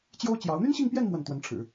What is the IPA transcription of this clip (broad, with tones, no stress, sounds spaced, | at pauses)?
t͡ɕ j o˥ ʊ̯ t͡ɕ j ɑ˧˥ ʊ̯ n̪ y˥ n ɕ i˥˧ ŋ p j ɛ˥˧ n m w ə˥˩ n t̪ w ə˧˥ n ʈ͡ʂʰ ɻ̩˨˩˦